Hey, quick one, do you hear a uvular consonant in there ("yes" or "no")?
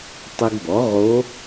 yes